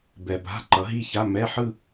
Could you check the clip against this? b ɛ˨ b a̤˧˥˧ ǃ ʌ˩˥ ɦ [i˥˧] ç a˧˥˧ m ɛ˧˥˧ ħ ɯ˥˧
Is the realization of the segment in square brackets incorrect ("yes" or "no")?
no